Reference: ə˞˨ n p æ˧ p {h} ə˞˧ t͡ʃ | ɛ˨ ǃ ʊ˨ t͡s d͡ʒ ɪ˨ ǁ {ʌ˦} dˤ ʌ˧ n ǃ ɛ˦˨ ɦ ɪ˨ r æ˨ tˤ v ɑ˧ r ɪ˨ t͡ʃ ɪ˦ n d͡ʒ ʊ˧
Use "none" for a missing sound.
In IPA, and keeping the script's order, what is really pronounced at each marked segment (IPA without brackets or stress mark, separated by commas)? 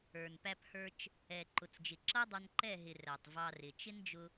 h, ʌ˦